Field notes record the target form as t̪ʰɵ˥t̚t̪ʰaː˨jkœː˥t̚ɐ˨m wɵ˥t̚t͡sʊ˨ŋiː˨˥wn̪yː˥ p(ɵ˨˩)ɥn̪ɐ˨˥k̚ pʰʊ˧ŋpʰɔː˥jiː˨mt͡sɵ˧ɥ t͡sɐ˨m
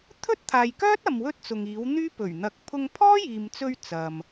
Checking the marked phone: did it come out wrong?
no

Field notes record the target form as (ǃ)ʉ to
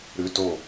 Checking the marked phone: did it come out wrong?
yes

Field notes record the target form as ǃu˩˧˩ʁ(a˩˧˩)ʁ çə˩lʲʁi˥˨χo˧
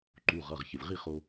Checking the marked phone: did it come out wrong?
yes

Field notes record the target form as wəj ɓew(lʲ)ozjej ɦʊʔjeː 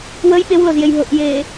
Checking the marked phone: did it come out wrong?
yes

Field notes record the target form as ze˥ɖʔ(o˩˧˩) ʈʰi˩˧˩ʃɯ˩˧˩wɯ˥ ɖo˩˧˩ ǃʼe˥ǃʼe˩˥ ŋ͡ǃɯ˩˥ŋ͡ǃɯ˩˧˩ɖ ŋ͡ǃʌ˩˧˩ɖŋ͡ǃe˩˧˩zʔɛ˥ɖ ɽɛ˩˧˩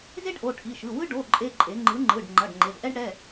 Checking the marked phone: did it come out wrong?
no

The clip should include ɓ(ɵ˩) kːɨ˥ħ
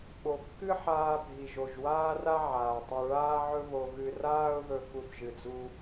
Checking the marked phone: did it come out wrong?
yes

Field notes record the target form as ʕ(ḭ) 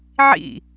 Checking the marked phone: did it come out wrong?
no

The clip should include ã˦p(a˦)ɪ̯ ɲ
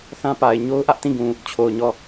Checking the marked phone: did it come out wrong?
yes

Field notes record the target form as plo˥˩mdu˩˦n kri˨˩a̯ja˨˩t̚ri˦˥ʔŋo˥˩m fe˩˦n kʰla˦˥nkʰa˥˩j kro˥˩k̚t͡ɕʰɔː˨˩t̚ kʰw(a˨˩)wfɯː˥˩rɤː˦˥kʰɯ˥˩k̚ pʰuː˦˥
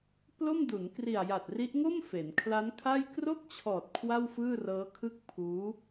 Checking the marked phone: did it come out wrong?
yes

